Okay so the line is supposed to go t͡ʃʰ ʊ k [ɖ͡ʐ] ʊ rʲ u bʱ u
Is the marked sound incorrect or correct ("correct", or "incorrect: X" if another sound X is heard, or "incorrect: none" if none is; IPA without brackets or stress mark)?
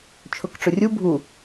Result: incorrect: ʈ͡ʂ